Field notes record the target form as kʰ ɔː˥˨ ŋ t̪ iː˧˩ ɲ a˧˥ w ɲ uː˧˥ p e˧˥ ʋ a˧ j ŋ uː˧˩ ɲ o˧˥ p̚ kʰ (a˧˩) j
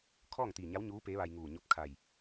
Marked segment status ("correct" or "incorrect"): correct